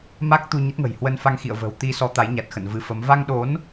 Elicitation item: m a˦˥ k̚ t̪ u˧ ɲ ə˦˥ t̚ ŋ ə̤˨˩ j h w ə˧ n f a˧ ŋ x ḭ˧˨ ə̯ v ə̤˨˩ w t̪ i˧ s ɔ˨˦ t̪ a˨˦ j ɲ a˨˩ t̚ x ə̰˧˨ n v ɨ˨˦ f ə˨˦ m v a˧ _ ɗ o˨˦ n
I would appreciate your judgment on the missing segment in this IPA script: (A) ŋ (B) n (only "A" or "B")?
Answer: A